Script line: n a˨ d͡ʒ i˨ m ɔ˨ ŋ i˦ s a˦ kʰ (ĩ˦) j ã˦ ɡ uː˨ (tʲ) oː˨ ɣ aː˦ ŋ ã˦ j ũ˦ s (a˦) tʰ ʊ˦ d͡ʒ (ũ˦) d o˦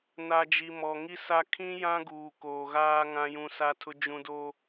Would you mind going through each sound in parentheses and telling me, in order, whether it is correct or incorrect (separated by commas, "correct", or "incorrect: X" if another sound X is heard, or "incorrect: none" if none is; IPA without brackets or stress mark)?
correct, incorrect: k, correct, correct